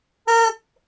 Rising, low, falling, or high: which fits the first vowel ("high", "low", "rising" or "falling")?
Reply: high